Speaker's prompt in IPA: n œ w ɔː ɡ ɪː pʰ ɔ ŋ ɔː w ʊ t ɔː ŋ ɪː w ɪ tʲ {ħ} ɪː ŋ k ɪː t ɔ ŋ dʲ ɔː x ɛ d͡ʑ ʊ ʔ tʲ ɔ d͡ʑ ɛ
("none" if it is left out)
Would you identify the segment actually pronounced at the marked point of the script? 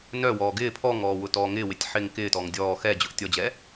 ħ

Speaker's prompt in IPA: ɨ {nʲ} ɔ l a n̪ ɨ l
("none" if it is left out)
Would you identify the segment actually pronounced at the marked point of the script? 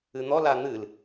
n̪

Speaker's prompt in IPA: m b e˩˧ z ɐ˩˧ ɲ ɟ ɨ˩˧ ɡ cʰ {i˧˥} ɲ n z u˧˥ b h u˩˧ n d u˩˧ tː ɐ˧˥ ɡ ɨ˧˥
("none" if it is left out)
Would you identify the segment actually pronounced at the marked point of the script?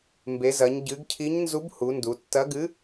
i˧˥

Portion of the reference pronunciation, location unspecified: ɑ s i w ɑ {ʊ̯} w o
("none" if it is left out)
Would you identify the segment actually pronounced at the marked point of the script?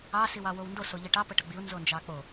none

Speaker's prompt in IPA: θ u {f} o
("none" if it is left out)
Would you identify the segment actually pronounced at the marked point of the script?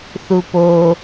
p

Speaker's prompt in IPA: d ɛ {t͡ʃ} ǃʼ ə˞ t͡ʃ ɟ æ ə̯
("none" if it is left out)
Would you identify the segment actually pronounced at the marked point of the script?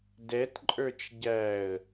t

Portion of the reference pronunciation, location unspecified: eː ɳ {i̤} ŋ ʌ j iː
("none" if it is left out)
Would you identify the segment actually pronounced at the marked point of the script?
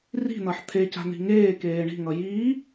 i̤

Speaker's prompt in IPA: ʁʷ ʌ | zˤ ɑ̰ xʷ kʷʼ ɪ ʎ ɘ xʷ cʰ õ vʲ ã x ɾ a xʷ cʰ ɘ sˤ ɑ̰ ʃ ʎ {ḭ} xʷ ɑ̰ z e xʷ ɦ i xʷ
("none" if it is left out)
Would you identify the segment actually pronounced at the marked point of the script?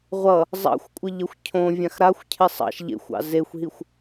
ḛ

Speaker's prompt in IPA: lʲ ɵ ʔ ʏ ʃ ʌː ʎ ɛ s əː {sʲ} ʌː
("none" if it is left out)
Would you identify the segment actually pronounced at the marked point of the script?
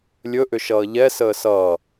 s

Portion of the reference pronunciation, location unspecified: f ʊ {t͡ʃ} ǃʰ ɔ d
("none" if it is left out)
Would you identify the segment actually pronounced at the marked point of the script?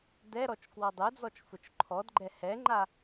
t͡ʃ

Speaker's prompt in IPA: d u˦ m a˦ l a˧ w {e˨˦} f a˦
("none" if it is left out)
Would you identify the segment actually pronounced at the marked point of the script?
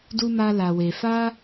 e˧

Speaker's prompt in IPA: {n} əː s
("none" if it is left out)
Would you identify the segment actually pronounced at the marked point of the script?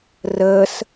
r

